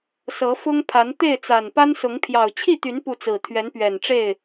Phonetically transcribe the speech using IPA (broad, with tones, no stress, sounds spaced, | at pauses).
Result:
s ɤ˨˦ f ʊ˦ ŋ pʰ a˨˦ n t̪ e˥˨ ɪ̯ t͡s a˨˩ n p a˦ n s ʊ˨˦ ŋ pʰ j ɑ˨˩ ʊ̯ t͡ɕʰ i˥˨ t̪ y˨˦ n p u˨˦ t͡s ɹ̩˨˩ t̪ʰ ɥ ɛ˨˦ n p ɥ ɛ˨˩ n ʈ͡ʂ e˥˨ ɪ̯